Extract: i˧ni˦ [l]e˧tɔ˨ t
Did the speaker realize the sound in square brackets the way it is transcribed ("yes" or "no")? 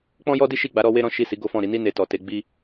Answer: no